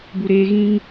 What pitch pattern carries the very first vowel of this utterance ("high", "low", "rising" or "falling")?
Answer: low